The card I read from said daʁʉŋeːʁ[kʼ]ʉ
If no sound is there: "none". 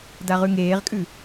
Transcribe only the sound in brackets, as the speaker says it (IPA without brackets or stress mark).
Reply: kʼ